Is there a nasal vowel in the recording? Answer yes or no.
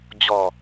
no